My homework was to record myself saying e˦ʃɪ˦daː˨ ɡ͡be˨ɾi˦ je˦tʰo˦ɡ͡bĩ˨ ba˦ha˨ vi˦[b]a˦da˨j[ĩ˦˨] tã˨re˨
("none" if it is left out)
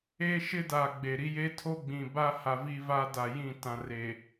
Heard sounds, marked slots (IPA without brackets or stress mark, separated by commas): v, ĩ˦˨